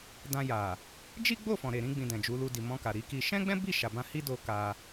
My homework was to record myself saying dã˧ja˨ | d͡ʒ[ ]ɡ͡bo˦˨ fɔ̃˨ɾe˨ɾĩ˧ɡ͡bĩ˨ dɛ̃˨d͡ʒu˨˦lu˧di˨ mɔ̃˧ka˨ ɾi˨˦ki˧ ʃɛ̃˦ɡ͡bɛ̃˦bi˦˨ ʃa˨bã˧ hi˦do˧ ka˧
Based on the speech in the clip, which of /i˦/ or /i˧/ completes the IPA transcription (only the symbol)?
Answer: i˦